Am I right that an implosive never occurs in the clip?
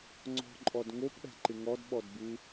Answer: no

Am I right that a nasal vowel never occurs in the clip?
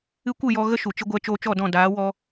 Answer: no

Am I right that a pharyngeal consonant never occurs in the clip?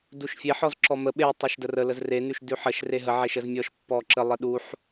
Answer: no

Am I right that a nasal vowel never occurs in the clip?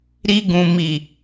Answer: no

